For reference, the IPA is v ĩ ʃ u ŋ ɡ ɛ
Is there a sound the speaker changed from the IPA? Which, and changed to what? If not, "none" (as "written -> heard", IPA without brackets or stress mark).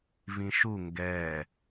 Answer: none